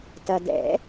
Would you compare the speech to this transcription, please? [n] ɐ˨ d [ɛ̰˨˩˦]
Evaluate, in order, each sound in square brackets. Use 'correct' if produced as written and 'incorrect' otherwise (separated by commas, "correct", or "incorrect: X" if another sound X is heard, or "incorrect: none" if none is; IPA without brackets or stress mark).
incorrect: t, correct